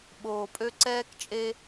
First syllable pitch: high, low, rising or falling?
low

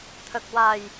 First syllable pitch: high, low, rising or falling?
low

